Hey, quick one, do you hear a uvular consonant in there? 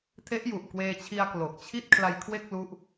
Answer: no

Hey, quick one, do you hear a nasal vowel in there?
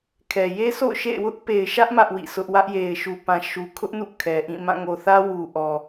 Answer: yes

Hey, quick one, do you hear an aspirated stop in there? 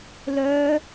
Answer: no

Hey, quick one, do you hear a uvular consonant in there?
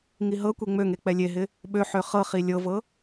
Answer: yes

